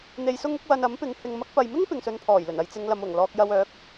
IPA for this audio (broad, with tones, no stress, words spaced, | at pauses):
n̪e˧jsʊ˥ŋʊ˨˥k̚ wɐ˧nɐ˨˥mpɪ˨˧ŋ hɪ˨ŋmɐ˧k̚pɐ˨jmɪ˥ŋ pɪ˨ŋsɵ˧npʰɔː˨˩jlɵ˨˩n ɐ˧jt͡sɪ˨˧ŋ lɐ˨˧mʊ˨˩ŋlɔː˧k̚ jɐ˧wœː˨˥k̚